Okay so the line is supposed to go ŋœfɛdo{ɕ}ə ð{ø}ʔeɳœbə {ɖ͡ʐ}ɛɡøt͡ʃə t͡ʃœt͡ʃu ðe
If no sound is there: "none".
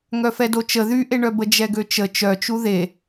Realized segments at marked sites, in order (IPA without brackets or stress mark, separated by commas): t͡ʃ, y, d͡ʒ